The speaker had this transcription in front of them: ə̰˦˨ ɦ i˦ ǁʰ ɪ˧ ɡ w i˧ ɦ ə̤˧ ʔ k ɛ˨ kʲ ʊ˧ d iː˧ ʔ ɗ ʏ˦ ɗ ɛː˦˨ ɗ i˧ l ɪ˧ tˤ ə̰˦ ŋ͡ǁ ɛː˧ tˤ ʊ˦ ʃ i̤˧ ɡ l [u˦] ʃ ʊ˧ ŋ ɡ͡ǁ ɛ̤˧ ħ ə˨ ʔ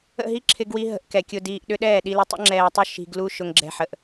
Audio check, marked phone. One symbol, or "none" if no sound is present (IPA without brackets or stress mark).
u˦